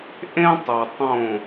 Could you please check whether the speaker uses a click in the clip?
no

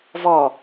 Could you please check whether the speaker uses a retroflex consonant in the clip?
no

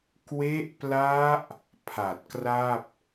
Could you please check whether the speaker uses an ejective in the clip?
no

